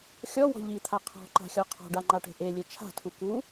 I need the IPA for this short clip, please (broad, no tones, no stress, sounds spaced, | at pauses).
xʲ ɔ w ɔ̤ ʎ i t̪ʰ a qʰ ɔ̤ ǃ a̤ xʲ ɔ qʰ ɔ̤ ɖ a ŋ͡ǃ a ʈ e̤ ʔ e lʲ e t͡ʃʰ a̤ tʰ u k u